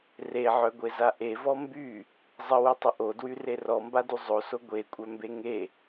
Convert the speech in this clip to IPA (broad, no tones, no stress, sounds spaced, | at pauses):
r e ʕ œ ɡʷ e z a ʔ e v ɔ m b y | zˤ ə w y tˤ ʏ ʔ o d w y r e r ɔ m b a d y zˤ o s o ɡʷ e kʷʼ œ m b e ŋ e